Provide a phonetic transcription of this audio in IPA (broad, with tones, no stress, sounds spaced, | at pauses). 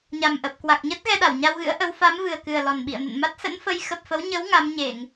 ɲ a˨˩ m ʔ ə˨˩ p̚ k w a˨˩ k̚ ɲ ə˦˥ t̚ ɣ ɛ˧ ɗ a˧˩ w ɲ a˧ w ɣ ɨ̰˧˥ ə̯ ʔ ə˨˦ w f a˨˦ m v ɨ˨˩ ə̯ k ɨ˨˩ ə̯ l ɔ˨˩ n ɓ ḭ˧˨ ə̯ n ə̰˧˨ n m a˦˥ t̚ s ə̰˧˥ n f ə˨˦ j x ə˨˩ p̚ f ə˨˦ w ɲ ə˨˦ w ŋ a˨˦ m ɲ e˧˩˨ ŋ